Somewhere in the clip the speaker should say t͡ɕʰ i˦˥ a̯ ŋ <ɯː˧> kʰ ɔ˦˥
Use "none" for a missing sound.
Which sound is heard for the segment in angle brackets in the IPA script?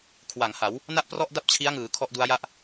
ɯː˩˦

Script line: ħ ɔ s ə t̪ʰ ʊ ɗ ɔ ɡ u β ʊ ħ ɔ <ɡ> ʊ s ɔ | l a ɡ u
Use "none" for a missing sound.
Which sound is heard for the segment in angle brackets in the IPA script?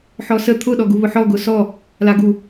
ɡ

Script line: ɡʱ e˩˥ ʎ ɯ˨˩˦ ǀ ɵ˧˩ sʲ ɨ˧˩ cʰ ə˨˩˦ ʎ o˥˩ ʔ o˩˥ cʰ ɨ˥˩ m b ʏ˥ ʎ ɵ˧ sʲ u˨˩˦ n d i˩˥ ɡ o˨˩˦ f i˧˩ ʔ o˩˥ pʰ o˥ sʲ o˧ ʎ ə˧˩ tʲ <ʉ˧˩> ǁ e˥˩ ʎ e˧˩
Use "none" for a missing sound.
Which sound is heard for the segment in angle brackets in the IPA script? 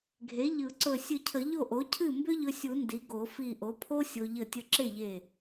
ə˧˩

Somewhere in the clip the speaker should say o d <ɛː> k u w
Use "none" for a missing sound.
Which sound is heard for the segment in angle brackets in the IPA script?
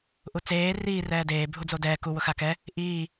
ɛː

